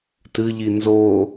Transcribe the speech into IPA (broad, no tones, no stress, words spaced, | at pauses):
tɨʎi nzo